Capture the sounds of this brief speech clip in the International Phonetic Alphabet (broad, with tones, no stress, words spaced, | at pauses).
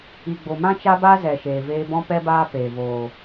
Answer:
i˨ ɡ͡bo˨mã˦ t͡ʃa˦ba˦zɛ˨ ʃeː˨veː˧bɔ̃˦pɛ˦ baː˦peː˨ voː˨